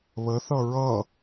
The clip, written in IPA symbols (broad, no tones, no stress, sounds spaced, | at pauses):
β ə θ ʌ ɹ ʌ